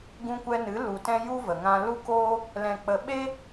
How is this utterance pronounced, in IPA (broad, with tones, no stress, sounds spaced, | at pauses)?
ɡ ũ˧ kʷ ɛ˧ n ɨ˨˦ l u˨ t ɛ̃˧ j u˦ v ə˨ ŋ ã˧ l u˦ k oː˦ | l ɛ̃˨ k͡p ə˨ ɓ e˦